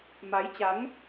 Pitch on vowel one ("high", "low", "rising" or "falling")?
rising